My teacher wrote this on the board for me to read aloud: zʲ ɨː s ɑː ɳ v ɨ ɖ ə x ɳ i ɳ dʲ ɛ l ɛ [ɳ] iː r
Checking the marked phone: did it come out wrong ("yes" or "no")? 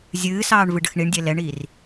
no